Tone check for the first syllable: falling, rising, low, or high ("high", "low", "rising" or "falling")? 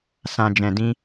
low